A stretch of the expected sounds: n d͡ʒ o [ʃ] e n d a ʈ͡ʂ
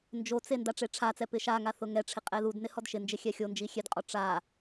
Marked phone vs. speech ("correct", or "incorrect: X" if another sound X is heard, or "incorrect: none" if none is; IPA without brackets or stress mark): incorrect: t͡s